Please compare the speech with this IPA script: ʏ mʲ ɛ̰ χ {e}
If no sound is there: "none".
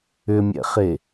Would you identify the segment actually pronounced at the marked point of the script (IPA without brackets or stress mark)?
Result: e